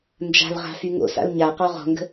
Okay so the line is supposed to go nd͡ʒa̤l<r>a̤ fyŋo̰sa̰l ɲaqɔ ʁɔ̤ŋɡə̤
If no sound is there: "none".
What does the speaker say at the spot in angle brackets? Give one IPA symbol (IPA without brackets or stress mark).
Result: ʁ